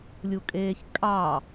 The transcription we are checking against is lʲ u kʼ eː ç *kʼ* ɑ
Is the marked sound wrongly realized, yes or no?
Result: no